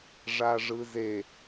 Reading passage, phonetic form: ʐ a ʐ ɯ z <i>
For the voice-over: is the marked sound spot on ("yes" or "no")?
no